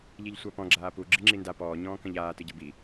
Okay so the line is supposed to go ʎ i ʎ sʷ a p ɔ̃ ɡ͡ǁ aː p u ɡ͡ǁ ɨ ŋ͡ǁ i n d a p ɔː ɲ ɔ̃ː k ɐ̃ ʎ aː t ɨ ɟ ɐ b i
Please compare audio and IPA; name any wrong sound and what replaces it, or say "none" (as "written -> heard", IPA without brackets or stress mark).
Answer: none